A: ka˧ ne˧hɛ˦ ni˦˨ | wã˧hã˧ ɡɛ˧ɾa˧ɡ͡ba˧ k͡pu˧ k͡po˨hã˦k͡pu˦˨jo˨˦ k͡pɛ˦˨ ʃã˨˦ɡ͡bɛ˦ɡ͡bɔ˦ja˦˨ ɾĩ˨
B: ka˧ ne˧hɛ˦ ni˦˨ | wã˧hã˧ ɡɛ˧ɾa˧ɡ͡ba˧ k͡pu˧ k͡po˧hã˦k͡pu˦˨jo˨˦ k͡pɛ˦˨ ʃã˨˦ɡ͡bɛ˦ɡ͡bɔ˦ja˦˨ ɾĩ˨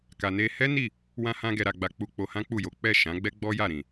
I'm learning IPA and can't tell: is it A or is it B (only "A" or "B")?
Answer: B